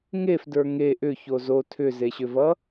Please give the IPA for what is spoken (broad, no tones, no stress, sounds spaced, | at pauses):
ŋ e f d ə˞ ŋ e ʔ ʏ ç o z o tʰ ʏ z e ɕ ʏ v ʌ